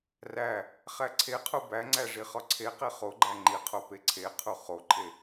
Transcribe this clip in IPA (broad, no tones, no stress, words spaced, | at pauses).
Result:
ræ | χæǀʰeqʰu bæŋ͡ǀæ ʐiχɒǀʰeqe χoɡ͡ǃæ ŋ͡ǃiqʰo peǀʰeqʰu χoǃʰe